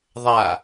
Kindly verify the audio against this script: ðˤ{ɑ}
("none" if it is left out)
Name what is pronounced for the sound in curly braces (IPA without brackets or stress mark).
a